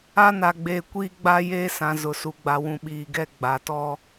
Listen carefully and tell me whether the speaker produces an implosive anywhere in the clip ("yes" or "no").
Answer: yes